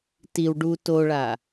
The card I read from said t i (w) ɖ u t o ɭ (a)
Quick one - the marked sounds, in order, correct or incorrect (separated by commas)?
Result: correct, correct